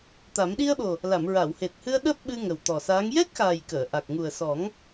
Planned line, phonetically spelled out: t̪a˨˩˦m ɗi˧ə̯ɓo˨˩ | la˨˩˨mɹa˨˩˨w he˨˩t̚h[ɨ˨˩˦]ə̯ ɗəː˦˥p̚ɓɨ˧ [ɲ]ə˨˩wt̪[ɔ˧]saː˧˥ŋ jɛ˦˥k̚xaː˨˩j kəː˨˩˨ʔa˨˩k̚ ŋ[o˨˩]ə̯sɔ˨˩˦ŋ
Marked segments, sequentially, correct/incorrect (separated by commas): incorrect, incorrect, incorrect, incorrect